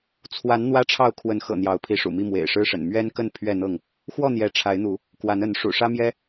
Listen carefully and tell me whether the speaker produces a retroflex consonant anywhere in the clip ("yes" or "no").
yes